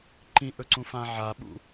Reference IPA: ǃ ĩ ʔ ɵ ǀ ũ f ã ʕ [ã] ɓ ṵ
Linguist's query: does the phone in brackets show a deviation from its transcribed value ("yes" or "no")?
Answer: yes